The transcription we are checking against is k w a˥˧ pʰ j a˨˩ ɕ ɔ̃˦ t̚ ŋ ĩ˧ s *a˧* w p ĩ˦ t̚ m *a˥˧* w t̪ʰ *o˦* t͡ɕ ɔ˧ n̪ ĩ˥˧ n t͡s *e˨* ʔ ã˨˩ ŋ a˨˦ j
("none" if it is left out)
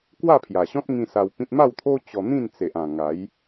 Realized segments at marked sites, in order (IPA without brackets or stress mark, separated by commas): a˧, a˥˧, o˦, e˨